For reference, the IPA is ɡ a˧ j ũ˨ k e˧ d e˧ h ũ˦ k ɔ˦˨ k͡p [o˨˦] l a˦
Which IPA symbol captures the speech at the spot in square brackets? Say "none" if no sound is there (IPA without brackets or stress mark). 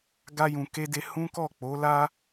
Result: o˨˦